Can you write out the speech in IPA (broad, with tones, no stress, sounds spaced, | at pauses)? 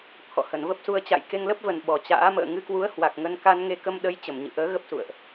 t̪ʰ ɔ̰˧˨ h ə˧˩ n v ə˦˥ p̚ s u˧ ə̯ t͡ɕ a̰˧˨ j k e˧ ŋ l ə˦˥ p̚ v ə˨˩ n ɓ ɔ˨˩ t͡ɕ a̰ː˧˥ m ə̰ː˧˨ ŋ ɨ˧ k w u˨˦ ə̯ h w a˨˩ k̚ ŋ ə˧ n k a˧ n ŋ e˧ k ə˧ m ɗ ə˨˦ j t͡ɕ ə˧˩ m ɲ ɨ̰˧˨ ʔ əː˨˦ ɣ ə˦˥ p̚ s ṵ˧˨ ə̯ ʔ